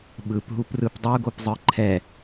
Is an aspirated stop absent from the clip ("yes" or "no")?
no